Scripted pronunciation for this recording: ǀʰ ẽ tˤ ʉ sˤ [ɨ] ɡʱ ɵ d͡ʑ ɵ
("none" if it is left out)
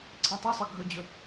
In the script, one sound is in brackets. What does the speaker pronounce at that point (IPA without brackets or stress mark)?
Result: ɨ